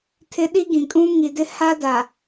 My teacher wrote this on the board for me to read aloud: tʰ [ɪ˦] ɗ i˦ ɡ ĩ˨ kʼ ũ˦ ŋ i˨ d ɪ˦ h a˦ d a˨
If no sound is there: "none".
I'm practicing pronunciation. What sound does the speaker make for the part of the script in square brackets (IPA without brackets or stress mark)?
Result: ɪ˦